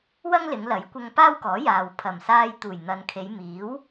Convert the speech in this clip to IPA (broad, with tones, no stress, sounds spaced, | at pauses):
w ɐ˥ ŋ l ɪ˨˧ ŋ l ɐ˨˥ j kʷ ɐ˧ ŋ p aː˥ w k ɔː˨˥ j aː˨ w pʰ ɐ˨˩ m s aː˧ j t̪ uː˨˩ j n̪ ɐ˨ n kʰ e˨˧ j m iː˨˥ w